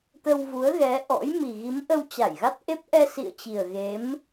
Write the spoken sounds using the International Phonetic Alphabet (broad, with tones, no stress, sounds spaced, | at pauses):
t̪ ə˧ w v u˨˦ ə̯ ɣ ɛ˨˦ ʔ ɔ̰˧˥ j m i˨˩ ɣ i˨˦ m ʔ ə˧ w t͡ɕ a˧˩ j ɣ a˦˥ t̚ ʔ e˦˥ p̚ ʔ ɛ˧ s ḭ˧˨ ə̯ t͡ɕ i˨˩ ə̯ ɣ e˨˦ m